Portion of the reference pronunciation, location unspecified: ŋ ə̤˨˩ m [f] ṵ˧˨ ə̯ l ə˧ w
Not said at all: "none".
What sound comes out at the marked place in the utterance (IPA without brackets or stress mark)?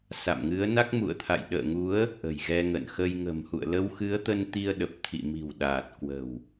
h